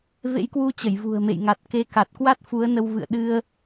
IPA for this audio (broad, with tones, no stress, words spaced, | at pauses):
vḛ˧˥jkwu˧ t͡ɕə˧˩jvṳ˨˩ə̯mḛ˧˨j ŋa˨˩t̚ke˨˦ka˨˩t̚ kwa˦˥t̚fu˨˦ə̯nə˧w vɨ̰˧˨ə̯ɗɨ˧ə̯